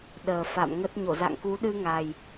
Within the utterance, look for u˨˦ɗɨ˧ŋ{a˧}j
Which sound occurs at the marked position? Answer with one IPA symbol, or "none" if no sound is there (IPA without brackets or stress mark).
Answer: a˨˩